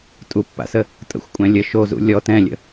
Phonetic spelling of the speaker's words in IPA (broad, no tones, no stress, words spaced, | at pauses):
tʼupːa̰sə | tʼə̰xʷkʷʼɛ̃ lʲə ʃozṵ lʲɔ tɛ̃lʲə̰